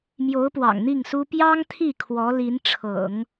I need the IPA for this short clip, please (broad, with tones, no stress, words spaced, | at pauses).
mjo˧˥ʊ̯pwɑ̰˨˩ŋn̪i˥˩ŋsu˥ pjɑ˥ŋt̪ʰi˥˩ kʰwɔ˧˥li˧˥nʈ͡ʂʰɤ̰˨˩˦ŋ